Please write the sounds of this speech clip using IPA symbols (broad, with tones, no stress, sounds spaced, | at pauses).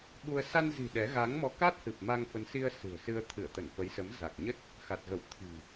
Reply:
ɓ u˧ ə̯ s a˧ n z i̤˨˩ ɗ ɛ˨˦ ɣ a˨˦ ŋ m ɔ˨˦ k a˦˥ t̚ h ɨ˨˩ p̚ m a˧ ŋ f ə˨˦ n s i˧ ə̯ s ɨ̤˨˩ ə̯ s ɨ˧ ə̯ t̪ʰ ɨ˧˩ ə̯ t̪ ə˧˩ n f ə˨˦ j s ə˨˦ m z a˨˩ k̚ ɲ ə˦˥ t̚ | x a˨˩ t̚ ɣ ə˧˩ w t̪ʰ i̤˨˩